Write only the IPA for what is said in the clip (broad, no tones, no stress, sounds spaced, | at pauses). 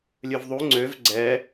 lʲ ø v ðˤ u ŋ͡ǀ ø v ɡ͡ǀ ɛ